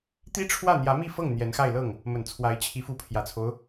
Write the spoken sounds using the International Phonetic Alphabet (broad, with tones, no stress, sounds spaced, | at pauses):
t̪ i˥ ʈ͡ʂʰ w ä˥˩ n̪ j ä˧˥ m i˥˧ f ɤ˥˩ ŋ n̪ j ɛ˧˥ n x a˥˧ ɪ̯ l ɤ˥˩ ŋ | m ə˨˩ n t͡sʰ w a˧˥ ɪ̯ t͡ɕʰ i˧˥ f u˧˥ pʰ j ä˨˩ t͡sʰ o˦ ʊ̯